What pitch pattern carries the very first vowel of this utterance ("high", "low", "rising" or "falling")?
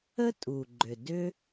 high